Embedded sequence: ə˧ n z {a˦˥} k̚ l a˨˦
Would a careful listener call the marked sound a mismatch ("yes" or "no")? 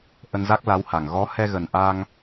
no